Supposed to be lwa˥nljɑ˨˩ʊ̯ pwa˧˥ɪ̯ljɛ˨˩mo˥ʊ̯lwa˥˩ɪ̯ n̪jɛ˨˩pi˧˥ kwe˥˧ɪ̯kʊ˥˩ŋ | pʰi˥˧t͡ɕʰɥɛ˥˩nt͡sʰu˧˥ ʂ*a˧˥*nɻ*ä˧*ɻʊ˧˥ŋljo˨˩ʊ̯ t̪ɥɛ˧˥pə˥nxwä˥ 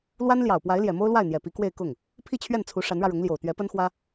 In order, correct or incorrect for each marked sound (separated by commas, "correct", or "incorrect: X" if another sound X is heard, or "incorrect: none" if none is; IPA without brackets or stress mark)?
correct, correct